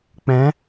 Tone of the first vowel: rising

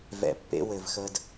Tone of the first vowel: low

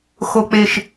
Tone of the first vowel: high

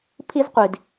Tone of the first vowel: high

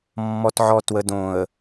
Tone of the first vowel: low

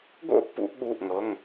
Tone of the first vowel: high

